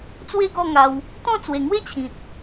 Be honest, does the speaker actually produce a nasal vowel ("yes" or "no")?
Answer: yes